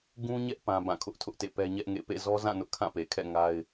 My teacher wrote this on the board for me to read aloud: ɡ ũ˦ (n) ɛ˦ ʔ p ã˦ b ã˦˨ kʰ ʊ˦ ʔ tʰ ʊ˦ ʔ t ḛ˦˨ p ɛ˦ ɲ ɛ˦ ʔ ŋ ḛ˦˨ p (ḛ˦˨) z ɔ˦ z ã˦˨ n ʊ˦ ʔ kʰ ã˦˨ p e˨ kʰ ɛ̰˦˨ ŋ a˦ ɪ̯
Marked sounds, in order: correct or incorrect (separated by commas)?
incorrect, correct